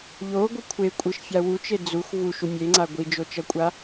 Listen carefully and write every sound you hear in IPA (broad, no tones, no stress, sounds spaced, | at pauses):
ʎ o ɡʷ ɯ kʷʰ e kʷʼ ɯ ʃ fʲ a w u t͡ʃ e d͡z u x v u ʃ u mʲ e ŋ͡ǀ a ɡʷ i d͡ʒ o t͡ʃ ʌ kʷʼ a